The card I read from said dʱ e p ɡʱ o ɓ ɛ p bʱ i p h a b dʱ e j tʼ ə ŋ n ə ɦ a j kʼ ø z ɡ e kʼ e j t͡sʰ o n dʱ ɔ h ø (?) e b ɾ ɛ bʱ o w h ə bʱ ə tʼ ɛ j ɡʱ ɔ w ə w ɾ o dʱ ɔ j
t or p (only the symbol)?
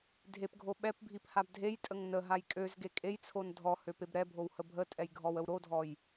p